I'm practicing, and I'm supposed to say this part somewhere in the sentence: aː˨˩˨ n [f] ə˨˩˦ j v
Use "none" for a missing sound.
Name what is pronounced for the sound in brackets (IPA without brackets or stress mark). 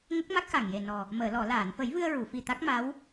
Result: f